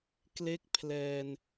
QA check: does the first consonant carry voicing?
no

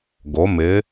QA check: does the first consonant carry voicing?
yes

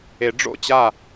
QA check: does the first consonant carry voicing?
yes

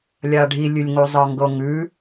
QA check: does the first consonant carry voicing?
yes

